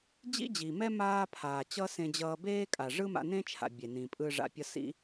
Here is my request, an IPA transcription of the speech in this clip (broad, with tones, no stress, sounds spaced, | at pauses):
d͡ʑ ḭ˦ d͡ʑ iː˨ m ɛ˦ m aː˦ pʰ aː˨ t͡ɕ ʌ˦ s ẽ˧ d͡ʑ ʌː˧ b eː˦ kʼ a˨ ʐ ɯ˦ m a̰˧ n ẽ˦ t͡ʃʰ a̰˨ bʲ e˨ n ĩ˨ pʼ ɯ˧ ʐ a̰˧ pʲ ʌ˦ s ḭ˦